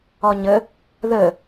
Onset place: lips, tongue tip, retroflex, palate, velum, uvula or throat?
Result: palate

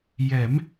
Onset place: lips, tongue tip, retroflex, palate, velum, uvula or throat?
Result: palate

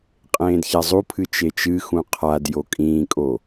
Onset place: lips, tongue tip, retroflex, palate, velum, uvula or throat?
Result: uvula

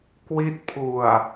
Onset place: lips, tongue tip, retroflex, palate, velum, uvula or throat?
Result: velum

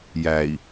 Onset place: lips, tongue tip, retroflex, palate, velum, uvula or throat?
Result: palate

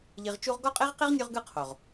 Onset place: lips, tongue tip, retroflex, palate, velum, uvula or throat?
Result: palate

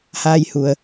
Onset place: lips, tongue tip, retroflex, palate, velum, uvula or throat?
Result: throat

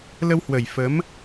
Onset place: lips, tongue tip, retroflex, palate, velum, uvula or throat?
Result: tongue tip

